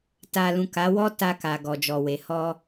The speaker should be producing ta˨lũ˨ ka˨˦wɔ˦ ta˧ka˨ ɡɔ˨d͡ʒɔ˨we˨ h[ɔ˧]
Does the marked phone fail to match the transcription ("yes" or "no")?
no